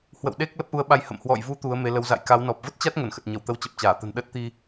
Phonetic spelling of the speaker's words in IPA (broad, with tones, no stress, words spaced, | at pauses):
hwə̰˧˨wɗe˦˥k̚ lə˦˥p̚ʔu˨˦ə̯ɓa˧jhə̰˧˨m hwɔ̰˧˨jvu˨˦ t̪u˨˦ə̯me˨˦lə˨˦w za̰˧˨jka˨˦wnɔ˨˩p̚ və˦˥t̚t͡ɕa˦˥t̚ ŋə˧˩nxə˨˩t̚ ɲə˧˩wt̪ə˨˦wt͡ɕə˨˩p̚t͡ɕaː˧˩ t̪ə̤˨˩n ɗə˦˥t̚t̪i˧